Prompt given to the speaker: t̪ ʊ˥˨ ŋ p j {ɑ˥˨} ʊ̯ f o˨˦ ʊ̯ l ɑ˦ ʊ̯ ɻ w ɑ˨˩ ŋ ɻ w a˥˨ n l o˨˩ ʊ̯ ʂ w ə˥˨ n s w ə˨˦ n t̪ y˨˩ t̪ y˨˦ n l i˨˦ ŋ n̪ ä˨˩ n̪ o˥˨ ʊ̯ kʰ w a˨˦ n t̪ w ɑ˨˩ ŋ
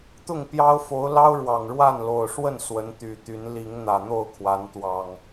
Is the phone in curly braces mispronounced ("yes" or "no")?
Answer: yes